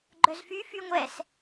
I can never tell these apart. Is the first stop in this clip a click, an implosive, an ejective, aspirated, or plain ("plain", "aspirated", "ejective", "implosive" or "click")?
click